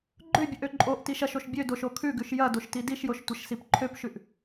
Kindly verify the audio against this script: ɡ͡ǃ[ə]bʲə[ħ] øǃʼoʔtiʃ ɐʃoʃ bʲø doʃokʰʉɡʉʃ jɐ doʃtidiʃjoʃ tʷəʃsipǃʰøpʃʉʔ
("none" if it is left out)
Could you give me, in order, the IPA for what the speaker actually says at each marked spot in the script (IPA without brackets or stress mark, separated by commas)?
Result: ø, ʔ